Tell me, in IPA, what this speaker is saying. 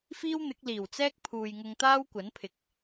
f iː˥ w n̪ ɪ˨˥ k̚ l iː˨˩ w t͡s ɛː˥ k̚ pʰ uː˨ j ŋ ʊ˧ ŋ t̪ aː˥ w kʷ ɐ˨˥ n pʰ ɪ˨ k̚

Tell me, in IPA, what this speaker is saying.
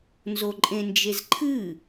n z o ǃʼ ẽ n d͡ʒ e z ǃʰ ɨ

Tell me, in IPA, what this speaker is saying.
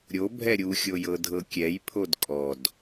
ɾʲ o bʱ ɛ ɾʲ u xʲ o j ɤ dʱ ɤ kʲ ɛ j pʰ o d kʼ ɔ d

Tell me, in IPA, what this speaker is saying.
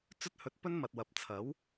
t͡s ɵ˥ t̚ h ɵ˧ t̚ p ɵ˥ n m ɐ˨ t̚ w ɐ˨ p̚ t͡sʰ ɐ˨˥ w

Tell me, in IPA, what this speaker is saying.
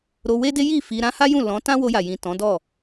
ɾ o˧ w e˦ d e˦ j i˦˨ f i˧ ɾ ã˦ h a˦ j ũ˦˨ l ɔ̃˨˦ t ã˦ w o˧ j a˨ j ĩ˨ t ɔ̃˨˦ d ɔ˦˨

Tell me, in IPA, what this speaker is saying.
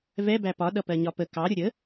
v ɛ b æ p ɒ ɗ ʌ p ɜ ɲ ɒ p ə k ɑ ɾʲ ʊ ɾʲ ə

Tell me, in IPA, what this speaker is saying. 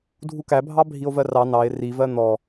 dʱ u k æ bʱ ɑ bʱ i o̯ v ɜ r ɑ n ɑ e̯ r i v ɜ n̪ ɔ

